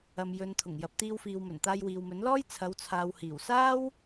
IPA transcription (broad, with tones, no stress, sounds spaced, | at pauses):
ɐ˨ m j ɵ˨ n t̪ʰ ʊ˨˩ ŋ j ɐ˨ p̚ t̪ iː˧ w f iː˨ w m ɵ˨˩ n t̪ aː˧ j w iː˨ w m ɵ˨˥ n l ɔː˥ j t͡sʰ ɐ˨˧ w t͡sʰ aː˨ w h iː˨˩ w s aː˥ w